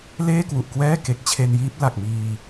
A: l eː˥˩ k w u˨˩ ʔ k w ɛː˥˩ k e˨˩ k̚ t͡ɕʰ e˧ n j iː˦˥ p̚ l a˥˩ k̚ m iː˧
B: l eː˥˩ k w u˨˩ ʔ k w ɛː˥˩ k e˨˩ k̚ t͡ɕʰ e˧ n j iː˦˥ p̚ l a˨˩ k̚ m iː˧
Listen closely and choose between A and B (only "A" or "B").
B